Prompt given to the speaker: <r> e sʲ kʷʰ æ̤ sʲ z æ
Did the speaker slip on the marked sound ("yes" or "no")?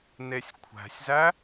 yes